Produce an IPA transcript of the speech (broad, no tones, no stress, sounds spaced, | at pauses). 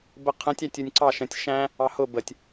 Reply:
b ə qʰ ə̃ tʲ æ tʲ u nʲ ǀ ɑ ʃ ə̃ tʲ ʃ æ̃ | ɑ h ʊ b ə tʲ